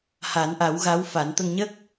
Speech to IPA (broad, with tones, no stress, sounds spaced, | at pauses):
h a˨˩˦ n ʔ a˨˩˦ w ɣ a˧˥ w f a˨˩˦ n t̪ ə˧ ŋ ɲ ə˦˥ k̚